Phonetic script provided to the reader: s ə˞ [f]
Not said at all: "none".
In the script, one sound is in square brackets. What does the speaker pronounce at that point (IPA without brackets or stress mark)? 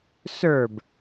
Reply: b